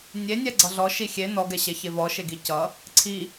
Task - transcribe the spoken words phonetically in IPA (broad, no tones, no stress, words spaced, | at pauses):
nʲenʲɛɡ͡ǀʌ ɮɔʃi xʲe nɔɡɛɕɛçe vɔʃeɡi cʌ | ǀʰi